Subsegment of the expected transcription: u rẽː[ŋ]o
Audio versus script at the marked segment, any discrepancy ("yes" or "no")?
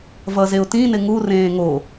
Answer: no